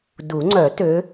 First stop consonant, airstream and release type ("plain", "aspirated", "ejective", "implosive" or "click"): plain